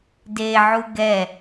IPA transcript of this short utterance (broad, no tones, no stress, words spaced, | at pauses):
deʕu ɡɛ